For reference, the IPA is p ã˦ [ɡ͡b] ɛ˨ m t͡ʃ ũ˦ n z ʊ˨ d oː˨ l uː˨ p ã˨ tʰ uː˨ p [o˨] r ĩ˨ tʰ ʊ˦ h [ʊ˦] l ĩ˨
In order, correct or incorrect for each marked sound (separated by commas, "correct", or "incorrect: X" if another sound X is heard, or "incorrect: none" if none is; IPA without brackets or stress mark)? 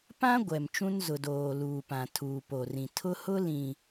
incorrect: ɡʷ, correct, correct